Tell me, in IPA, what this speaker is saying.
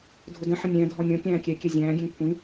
dʱ ʊ d ə̃ ħ ə̃ nʲ æ̃ dʱ ɔ nʲ ɔ̃ kʲ æ̃ː kʲ ɛ kʲ ɛ zʲ æ̃ː ɡʲ ɛ̃ ŋ kʷʰ ĩ

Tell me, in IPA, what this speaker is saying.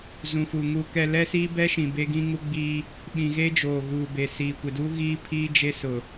z ũ˨ f u˨ ŋ u˨ k ɛ˨ l ɛ˦ s iː˦ b ɛ˦ ʃ ĩ˨ b e˦ ɡ ĩ˦ ŋ u˦ ɡ͡b iː˦ | ɓ ĩ˨ ɣ e˦ d͡ʒ oː˨ ɣ uː˨ b e˨ s iː˨ kʷ ɪ˨ d u˦ ɣ iː˦ pʰ iː˦ d͡ʒ e˦ s ʊ˨

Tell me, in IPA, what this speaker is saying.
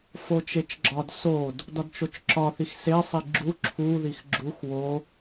f o t͡ʃ e t͡ʃ ɡ͡ǁ ɒ d s o d | d ɒ d t͡ʃ o t͡ʃ ǁ ɒ θ i x s e sˤ i ɡ͡ǁ u ǁʰ u ð i x ɡ͡ǁ u x w o

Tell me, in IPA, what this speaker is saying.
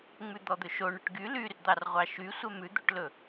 ŋ͡m ʉ d̪ ɔ d̪ ɵ ʃ o ɳ ɵ ʈ ɡ y l y r d̪ ɑ r ʁʷ ɑ ʃ y sʷ ɛ m ʉ d̪ o ʈ l ɵ

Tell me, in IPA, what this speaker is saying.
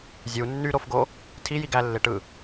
zʲ u nː y ɾ o f ɡ o | tʰ i j i ɡ æ lː e ʈ ɯ

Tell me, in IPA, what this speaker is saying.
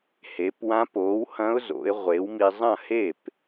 h e˩˥ p w ã˧˥ p o˩˥ w h ɐ̃˧˥ ʊ̯ z o̰˩˥ ɪ̯ ʁʷ e˩˥ w m i˧ zˤ ɐ̃˥˩ h e˥˩ p

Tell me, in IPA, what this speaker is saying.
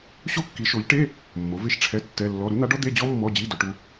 ɕ o˥ kː i˨˥ ʃ o˨˥ ʎ ʈ e˧˥˧ | mː o˨˥ v e˥ ʃ ʈ͡ʂʰ ɛ˧˥˧ tː ɛ˧˥˧ lː ɔ˧˥˧ ɾ u˨˥ n̪ a˨˥ ɖ ɔ˥ d̪ e˧˥˧ d͡ʑ ɔ˥ mː ɔ˧˥˧ d͡ʑ i˧˥˧ d ʊ˨˥ ʈ u˥

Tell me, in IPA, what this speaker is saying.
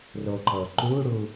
r o ǃ ɤː ǃ uː ɽ uː

